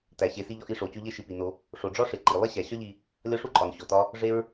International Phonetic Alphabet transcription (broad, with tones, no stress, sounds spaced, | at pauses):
t æ˨ ɕ e˨ s i˧ ʎ ɒ˧ ʔ i˧ ʂ o˨ t͡ɕ o˧ ʎ e˧ ʃ i˨ p i˨ n o˧ | ʂ o˨ ɖ͡ʐ ɒ˦ ʂ e˨ ǃ i˨ lˠ e˦ ɕ æ˨ ɕ ɒ˦ ʎ i˧ | lʲ ɒ˦ ʂ u˦ ǃʼ ɒ˨ n ɕ o˨ t ɒ˦ | ʐ e˦ ɹ